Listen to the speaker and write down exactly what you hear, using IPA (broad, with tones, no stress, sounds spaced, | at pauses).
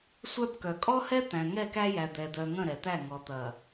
sʷ œ˦ b k œ˨ kʼ ɔ˦ h ɛ˦ t̪ æ̃˨ ŋ ɛ˦˨ k æ˦ j æ˨ d̪ ɛ˨ d̪ œ˨ ŋ ə̃˦˨ ɾ ɛ˨ t̪ æ˦˨ ŋ ɔ˨ t̪ ɐ˨